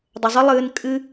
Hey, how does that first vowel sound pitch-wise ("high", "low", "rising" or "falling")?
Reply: low